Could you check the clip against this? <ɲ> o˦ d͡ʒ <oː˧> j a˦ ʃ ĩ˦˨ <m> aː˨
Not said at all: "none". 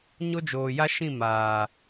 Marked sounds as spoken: ɲ, oː˨, m

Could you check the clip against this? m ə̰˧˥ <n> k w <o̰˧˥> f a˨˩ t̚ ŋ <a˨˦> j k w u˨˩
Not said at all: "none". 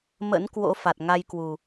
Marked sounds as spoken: n, o̰˧˥, a˧

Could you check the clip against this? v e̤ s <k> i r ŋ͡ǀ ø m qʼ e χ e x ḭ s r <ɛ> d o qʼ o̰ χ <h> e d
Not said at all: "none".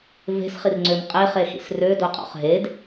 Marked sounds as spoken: χ, ø, ɦ

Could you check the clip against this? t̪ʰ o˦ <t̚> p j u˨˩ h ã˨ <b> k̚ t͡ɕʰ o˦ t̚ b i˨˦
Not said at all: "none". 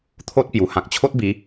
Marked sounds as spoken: t̚, none

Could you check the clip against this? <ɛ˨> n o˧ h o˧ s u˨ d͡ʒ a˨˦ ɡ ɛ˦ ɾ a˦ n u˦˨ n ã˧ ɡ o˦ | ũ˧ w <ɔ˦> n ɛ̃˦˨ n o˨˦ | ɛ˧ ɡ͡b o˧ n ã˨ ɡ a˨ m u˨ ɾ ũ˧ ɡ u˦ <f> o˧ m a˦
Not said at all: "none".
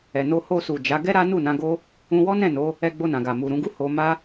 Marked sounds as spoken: ɛ˨, ɔ˦, h

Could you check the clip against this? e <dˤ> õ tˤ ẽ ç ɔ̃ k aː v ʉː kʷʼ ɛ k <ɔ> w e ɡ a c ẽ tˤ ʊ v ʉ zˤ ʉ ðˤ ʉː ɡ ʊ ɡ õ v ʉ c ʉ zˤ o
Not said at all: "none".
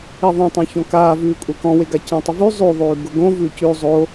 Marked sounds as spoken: ðˤ, ɔ̃

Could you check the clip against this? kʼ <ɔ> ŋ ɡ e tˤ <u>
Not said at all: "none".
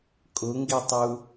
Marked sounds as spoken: ʊ, u

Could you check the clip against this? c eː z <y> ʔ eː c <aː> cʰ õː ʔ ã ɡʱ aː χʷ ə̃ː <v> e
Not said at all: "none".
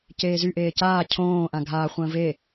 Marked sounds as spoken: y, aː, v

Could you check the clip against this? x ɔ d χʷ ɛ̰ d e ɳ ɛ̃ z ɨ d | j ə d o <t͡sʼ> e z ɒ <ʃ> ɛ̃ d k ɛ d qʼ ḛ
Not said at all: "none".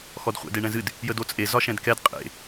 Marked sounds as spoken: t͡sʼ, ʃ

